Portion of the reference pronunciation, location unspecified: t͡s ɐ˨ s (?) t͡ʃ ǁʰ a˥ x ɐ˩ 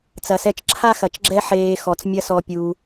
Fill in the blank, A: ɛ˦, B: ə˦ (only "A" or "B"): A